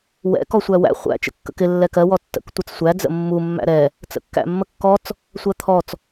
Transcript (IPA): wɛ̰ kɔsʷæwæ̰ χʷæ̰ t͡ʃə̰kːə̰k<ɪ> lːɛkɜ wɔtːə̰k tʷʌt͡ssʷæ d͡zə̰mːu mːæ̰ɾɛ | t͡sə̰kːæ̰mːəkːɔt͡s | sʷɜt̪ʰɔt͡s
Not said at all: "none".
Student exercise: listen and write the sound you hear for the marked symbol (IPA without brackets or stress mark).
ɪ